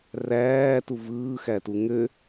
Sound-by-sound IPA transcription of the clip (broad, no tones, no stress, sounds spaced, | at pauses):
r æː t u v ɯː x æ t u ŋ ø